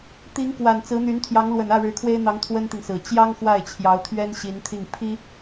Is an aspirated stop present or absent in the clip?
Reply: present